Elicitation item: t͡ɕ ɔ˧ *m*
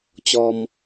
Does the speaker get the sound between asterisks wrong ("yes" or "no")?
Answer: no